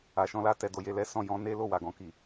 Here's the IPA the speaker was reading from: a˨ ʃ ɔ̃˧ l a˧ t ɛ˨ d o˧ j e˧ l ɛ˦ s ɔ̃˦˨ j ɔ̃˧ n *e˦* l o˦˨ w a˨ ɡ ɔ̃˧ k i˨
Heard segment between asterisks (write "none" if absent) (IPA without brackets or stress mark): e˦